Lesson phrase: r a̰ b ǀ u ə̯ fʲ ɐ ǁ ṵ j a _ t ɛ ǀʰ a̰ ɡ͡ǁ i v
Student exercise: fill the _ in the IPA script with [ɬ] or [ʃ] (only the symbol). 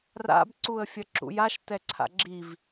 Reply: ʃ